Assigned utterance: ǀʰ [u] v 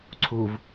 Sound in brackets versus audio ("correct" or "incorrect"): correct